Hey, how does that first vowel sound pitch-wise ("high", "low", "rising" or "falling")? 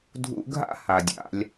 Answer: high